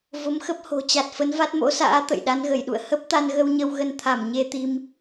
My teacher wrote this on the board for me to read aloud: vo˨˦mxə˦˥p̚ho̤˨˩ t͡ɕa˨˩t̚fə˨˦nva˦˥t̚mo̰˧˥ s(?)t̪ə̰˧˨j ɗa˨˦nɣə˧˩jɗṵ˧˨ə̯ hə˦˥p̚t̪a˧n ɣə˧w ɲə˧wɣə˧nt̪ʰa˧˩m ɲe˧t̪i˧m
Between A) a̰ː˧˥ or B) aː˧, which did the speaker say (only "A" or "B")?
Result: A